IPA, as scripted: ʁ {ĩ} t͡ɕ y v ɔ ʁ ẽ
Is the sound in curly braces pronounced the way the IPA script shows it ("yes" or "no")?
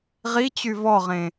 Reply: no